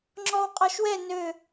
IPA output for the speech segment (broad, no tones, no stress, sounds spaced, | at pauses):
ŋ͡ǁ ɔ w qʼ ɔ ʃ w ɛ n ø